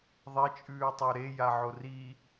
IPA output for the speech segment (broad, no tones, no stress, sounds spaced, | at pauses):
ðˤ e t͡ʃʼ ʉː tˤ o ɾ e j a ʕ o r i